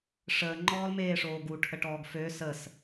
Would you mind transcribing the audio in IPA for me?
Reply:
ʂ əː ŋ͡ǃ ɔː l m eː ʂ oː ɡ u ʈʰ ə ʈ ɔː ɡ f ø s ə s

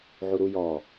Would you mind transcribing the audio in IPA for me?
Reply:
ʕ u ɾ u j ɔ

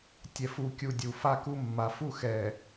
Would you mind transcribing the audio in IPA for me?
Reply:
tʲ ɛ˨ f u˨ kʲ u˨ dʲ u˨ f a˦ k u˦ mː a˨˦ f u˦ x ɛ˨

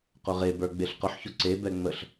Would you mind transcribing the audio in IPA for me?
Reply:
q ʊ ʁ e b ə˞ ɡ͡b e ɬ q ʊ ħ ç ʊ ǀ e b ɛ ŋ͡m ə ɬ

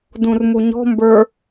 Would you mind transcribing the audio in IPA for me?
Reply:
d ũ r m u ɲ ɔ̤ m b ə˞

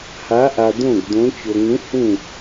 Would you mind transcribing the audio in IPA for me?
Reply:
h a˧˥ ʔ a˧ d̪ õ˥˨ ɡ d̪ õ˧˥ t͡ɕ o˧ ŋ ũ˧˥ h ũ˥˨

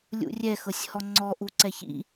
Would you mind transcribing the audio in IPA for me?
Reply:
lʲ ṵ rʲ ɛ x ɤ sʲ h ɔ ŋ͡ǀ ɔ ʔ u ǀ ɛ ç ḭ

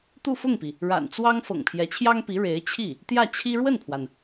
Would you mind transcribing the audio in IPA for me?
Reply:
t̪ u˥˧ f ʊ˥˩ ŋ p i˩ | ɻ a̰˨˩ n t͡s w ɑ˥ ŋ f ɤ̰˨˩ ŋ pʰ j ɛ˧˥ t͡ɕʰ j ɑ˥ ŋ p i˧˥ ɻ e˧˥ ɪ̯ t͡ɕʰ i˥˩ | t̪ j ä˥˩ t͡ɕʰ i˥ ɻ w ə˥˩ n pʰ w a˩ n

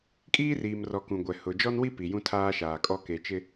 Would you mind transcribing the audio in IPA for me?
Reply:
kʼ iː˦ r iː˨ m r ɔ˨ k ũ˨ ɡʷ ɛ˨ h ʊ˨ d͡ʒ ɔ˦ n w i˦ p i˨ j ũ˦ tʰ aː˦ ʃ aː˨ kʼ ɔ˦ k e˨ t͡ʃ ɪ˦

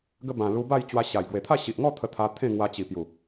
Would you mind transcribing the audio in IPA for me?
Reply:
ɡ ə˧ b ã˨˩ l u˧ b a˥˧ j t͡ɕ w a˧ ɕ a˨˩ j ɡ w e˨˩ t̪ʰ a˥˧ ɕ i˨ ʔ ŋ ɔ˥˧ t̪ʰ ə˧ t̪ʰ a˧ t̪ʰ ẽ˥˧ ŋ w a˧ t͡ɕ i˨˩ p j u˨˩

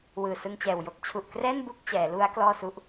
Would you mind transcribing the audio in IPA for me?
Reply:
w ɯː˨˩ s ɯ˧ ŋ t͡ɕ ɛː˨˩ w j o˥˩ k̚ t͡ɕʰ u˨˩ ʔ k r ɛː˥˩ n b u˥˩ k̚ t͡ɕ ɛː˩˦ l u˦˥ a̯ k l ɔː˥˩ s u˦˥ ʔ

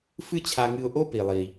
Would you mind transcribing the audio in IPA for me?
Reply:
f ɨ˥ t͡ɕʰ a˧ ŋ ɨ˧ ʊ̯ ʔ o˥ p i˩ lˠ i˩

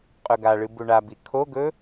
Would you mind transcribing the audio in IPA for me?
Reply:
qʼ ɵ ɡ a ɭ ɨ b u ɳ a b i kʰ o ɡ ɵ

